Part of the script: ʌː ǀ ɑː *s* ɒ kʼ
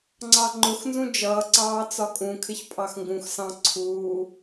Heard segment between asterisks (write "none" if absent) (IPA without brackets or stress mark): t͡s